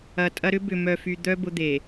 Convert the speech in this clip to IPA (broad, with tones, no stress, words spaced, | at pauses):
ɐ˨tʼɐ˦ ɾʏ˦ bʏ˨ mœ˨fy˨d̪œ˦ bʊ˦d̪e˨